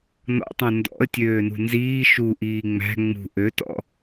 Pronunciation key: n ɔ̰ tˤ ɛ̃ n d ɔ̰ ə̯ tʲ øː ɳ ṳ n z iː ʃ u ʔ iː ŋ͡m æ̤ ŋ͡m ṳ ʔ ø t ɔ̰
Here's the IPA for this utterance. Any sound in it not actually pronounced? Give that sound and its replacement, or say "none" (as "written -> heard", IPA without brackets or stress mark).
ɳ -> n